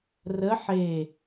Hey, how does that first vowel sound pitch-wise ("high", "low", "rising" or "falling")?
rising